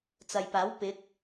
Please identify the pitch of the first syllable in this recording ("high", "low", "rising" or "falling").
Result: low